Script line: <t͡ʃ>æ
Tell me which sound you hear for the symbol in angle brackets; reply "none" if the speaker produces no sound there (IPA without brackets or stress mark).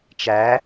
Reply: t͡ʃ